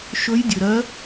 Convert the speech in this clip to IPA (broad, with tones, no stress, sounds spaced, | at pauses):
ʃ ɵ˧˥ j dʲ ɵ˨ ɾ ɜ˧˥